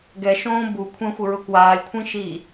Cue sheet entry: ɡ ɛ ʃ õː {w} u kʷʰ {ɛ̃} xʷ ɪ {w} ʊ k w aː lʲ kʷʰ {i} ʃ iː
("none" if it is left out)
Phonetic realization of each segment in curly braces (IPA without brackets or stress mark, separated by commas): b, ɛ̃, ɹ, ĩ